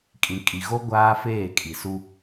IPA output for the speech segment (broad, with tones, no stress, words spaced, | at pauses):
kʼĩ˨ kʼi˨ɣo˦ ɡʷaː˦feː˦˨kʼi˨su˦